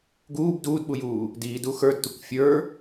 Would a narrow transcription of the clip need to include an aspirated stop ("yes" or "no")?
no